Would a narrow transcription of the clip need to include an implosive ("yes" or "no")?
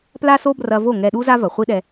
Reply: yes